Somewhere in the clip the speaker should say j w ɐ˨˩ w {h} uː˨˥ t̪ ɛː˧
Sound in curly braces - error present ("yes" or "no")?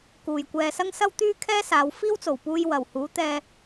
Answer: no